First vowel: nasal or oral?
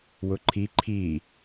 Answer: oral